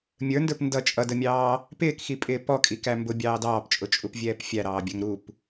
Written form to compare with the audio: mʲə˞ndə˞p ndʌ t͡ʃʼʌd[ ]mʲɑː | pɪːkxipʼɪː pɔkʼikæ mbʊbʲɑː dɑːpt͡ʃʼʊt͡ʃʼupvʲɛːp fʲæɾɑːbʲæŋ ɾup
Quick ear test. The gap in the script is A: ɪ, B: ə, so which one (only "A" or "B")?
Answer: B